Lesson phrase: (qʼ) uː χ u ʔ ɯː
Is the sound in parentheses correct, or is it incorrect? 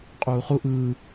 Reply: correct